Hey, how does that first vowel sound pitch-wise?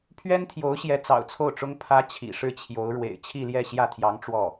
high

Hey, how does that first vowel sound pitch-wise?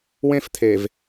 high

